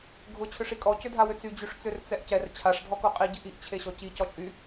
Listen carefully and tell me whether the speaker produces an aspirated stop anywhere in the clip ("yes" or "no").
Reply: yes